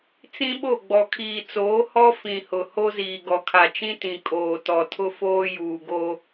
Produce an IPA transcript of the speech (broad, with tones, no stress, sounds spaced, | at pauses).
t͡s ĩ˦ ɓ o˦˨ ɡ͡b ɔ˨ kʰ iː˨ t͡s oː˨˦ h ɔ˦ f ĩ˨ h ʊ˨ h o˦ z iː˨ ɡ ɔ˨ kʰ a˨ t͡ʃ ĩ˦ t ĩ˨ kʼ oː˨ t ɔ˨ tʰ ʊ˦ f oː˦ j uː˨ ɡ oː˦